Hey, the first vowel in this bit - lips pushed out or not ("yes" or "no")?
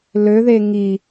yes